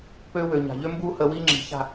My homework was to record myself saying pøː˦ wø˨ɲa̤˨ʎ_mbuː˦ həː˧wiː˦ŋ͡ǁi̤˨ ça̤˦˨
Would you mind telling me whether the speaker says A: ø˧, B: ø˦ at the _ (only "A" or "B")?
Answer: B